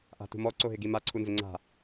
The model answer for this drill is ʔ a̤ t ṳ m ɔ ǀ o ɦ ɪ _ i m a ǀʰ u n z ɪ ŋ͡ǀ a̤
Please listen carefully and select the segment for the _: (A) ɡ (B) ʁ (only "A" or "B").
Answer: A